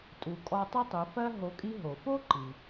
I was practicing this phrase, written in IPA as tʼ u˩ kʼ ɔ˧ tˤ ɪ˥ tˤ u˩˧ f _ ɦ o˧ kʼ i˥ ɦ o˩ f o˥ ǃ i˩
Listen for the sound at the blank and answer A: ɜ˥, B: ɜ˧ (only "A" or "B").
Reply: A